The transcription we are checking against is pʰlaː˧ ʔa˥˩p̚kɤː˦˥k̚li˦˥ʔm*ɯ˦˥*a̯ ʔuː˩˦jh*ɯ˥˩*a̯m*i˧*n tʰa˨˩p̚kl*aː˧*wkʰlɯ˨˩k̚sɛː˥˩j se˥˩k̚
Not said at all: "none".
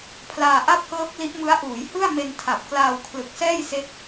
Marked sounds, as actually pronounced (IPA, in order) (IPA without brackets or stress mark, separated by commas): ɯ˦˥, ɯ˥˩, e˧, aː˧